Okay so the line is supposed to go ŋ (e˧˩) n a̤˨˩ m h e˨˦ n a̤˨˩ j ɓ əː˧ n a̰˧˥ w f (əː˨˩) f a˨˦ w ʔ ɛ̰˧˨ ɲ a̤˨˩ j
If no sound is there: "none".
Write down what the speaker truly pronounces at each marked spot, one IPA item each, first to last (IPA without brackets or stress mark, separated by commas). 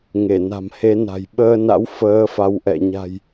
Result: e˧˩, əː˨˦